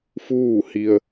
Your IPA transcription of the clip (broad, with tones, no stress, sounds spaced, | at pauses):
f uː˥˨ h i˧ ə̯